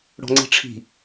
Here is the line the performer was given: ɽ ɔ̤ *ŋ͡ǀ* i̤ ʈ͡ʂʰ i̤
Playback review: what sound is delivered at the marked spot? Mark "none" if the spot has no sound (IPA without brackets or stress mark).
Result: ŋ͡ǀ